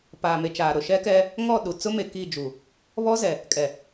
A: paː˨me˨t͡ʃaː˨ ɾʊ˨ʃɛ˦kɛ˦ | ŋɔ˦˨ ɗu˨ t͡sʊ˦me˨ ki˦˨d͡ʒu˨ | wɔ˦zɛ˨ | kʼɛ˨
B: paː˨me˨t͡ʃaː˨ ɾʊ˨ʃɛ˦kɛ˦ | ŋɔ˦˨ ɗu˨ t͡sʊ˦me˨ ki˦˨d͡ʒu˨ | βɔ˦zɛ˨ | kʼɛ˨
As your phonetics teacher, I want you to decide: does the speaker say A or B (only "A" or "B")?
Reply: B